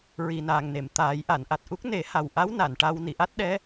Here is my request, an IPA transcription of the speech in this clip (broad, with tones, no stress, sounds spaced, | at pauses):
ɹ i˨˩ n aː˨˩ ŋ n e˨˩˨ m t̪ aː˨˩˦ j ʔ a˨˩˨ n ʔ a˨˩ t̚ ʔ u˦˥ k̚ n e˨˩˦ h a˨˩ w ʔ a˧˥ w n a˨˩˨ n ʈ a˧ w n i˨˩˨ ʔ a˦˥ t̚ ɗ ɛ˧˥